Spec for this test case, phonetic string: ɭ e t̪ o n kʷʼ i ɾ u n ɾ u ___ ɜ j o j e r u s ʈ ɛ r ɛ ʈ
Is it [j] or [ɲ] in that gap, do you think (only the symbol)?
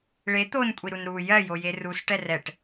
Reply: j